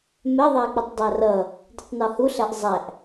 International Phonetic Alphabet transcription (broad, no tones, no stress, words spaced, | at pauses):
mɛðˤæk͡pɪtˤ dˤærʌ | ditˤnɔhuɬæʔ zˤæʔ